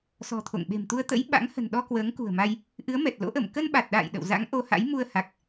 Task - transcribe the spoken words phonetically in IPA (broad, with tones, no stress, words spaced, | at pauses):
sɔ̤˨˩t̪ʰo̰˧˨ŋɓe̤˨˩mt̪u˧ə̯ t̪ə̰˧˥j ɓa̰˧˥ŋhə̤˨˩nɗɔ˧ kwəː˨˦ŋkṳ˨˩ə̯ma˧j | ʔɨ˨˦ə̯mɛ˨˩t̚lo̰˧˥ʔə˧˩m kə˧nɓa˨˩t̚ɗa̰ː˧˨j ɗə̰˧˨wza̰˧˥ŋ ʔo˧ha̰˧˥j mu˧ə̯ha˨˩k̚